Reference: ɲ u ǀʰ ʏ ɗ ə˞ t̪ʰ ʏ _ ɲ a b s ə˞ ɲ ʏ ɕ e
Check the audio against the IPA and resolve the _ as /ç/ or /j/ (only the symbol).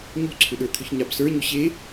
ç